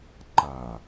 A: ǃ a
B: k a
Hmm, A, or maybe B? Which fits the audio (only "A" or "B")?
A